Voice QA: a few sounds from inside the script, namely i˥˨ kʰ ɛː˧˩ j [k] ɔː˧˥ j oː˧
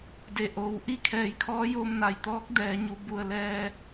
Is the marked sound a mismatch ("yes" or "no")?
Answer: yes